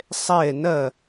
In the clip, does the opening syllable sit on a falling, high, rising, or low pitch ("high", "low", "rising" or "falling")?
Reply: falling